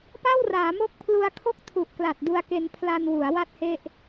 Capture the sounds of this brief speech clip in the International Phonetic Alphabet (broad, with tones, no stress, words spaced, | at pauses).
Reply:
pa˥˩wraː˩˦mo˦˥k̚ pʰlu˧a̯kʰo˥˩k̚tʰu˨˩ʔkla˨˩t̚ du˧a̯ke˧n pʰla˧nwu˩˦a̯ wa˥˩t̚he˥˩ʔ